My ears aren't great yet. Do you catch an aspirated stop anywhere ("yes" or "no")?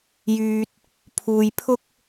yes